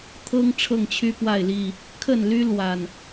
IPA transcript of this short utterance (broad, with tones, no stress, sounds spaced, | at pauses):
t̪ʰ ɤ˦ ŋ ʈ͡ʂʰ ɤ˥˨ ŋ t͡ɕʰ y˦ p w a˥˨ ɪ̯ l i˥˨ | kʰ ə˥˨ n l y˦ l w a˨˩ n